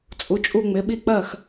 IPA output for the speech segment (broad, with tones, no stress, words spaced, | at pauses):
t͡sʼu˧˥t͡ʃʼu˥˧ŋ͡mɪ˧˥ɓi˥˧ k͡pɜ˥˧x